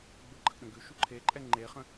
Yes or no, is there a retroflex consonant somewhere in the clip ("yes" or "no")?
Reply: no